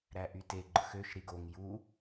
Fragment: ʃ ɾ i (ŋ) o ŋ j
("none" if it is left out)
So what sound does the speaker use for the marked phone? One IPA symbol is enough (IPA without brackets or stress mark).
ɡ